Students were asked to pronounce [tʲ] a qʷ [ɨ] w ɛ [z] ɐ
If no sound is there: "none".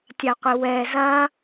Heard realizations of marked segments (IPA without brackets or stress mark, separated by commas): tʲ, ɨ, z